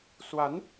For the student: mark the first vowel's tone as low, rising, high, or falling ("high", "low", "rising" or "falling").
rising